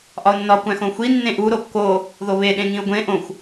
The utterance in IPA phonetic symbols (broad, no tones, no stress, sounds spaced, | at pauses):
ʔ ɒ ʊ̯ nː ɒ kʷ æ̃ x õ xʷ i nː ẽ ʔ u ɾ o kː o | ð o β e ɗ ẽ ŋ ĩ ʊ̯ ɡʷ ẽ ʔ õ xʷ